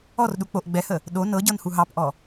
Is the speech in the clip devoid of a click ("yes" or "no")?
yes